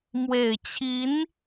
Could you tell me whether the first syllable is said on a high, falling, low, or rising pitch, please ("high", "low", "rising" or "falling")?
low